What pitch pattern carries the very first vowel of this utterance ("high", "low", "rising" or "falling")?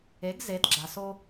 rising